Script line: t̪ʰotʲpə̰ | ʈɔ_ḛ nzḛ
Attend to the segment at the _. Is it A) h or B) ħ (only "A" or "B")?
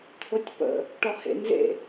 A